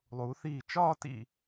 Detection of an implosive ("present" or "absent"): absent